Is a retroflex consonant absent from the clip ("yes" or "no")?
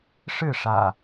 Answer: no